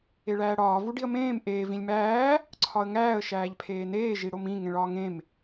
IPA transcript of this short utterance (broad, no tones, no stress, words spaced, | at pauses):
eɭæːɽɒː vuɖiə̯mẽːm ʔeː vĩlʲmæː | ǀʰɒə̯ŋæːə̯ ʃæːʎpʰeːneː ʒiɽomĩ ŋẽɭɒːŋẽm